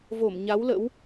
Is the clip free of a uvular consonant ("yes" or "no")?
yes